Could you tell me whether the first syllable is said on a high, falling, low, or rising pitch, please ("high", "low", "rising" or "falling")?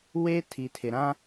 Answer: high